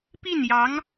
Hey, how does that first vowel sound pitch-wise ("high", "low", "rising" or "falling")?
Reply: falling